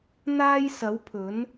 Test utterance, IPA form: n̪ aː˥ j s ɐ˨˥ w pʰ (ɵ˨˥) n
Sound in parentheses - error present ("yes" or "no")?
no